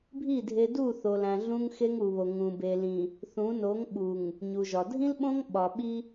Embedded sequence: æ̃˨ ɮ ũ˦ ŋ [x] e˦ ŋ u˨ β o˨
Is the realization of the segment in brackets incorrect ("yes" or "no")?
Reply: no